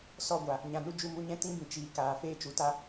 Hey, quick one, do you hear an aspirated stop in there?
no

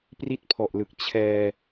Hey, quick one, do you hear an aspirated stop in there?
yes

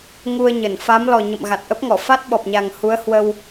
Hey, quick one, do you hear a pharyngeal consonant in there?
no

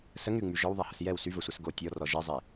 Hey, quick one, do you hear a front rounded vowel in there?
yes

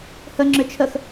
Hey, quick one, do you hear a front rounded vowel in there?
yes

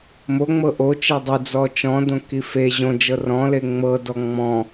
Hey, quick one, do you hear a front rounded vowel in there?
no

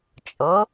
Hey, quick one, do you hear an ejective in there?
yes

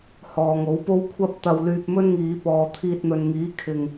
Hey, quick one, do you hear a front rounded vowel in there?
yes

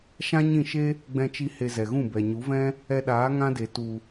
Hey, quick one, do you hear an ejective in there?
no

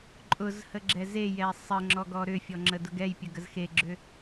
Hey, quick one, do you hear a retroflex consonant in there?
no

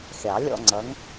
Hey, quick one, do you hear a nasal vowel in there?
no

